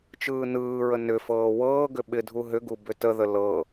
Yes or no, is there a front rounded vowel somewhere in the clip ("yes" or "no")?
yes